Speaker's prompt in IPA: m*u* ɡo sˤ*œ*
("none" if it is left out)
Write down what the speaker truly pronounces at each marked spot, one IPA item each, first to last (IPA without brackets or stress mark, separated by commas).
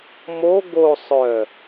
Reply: o, œ